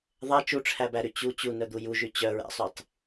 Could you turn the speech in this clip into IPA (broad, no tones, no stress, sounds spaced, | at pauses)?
ðˤ ɛ t͡ʃ u ʈ͡ʂʰ æ b æ ɾ y t͡ɕ u t͡ɕ u n œ d̪ u j u ʒ y t͡ɕ œ ɹ æ̰ sˤ y tˤ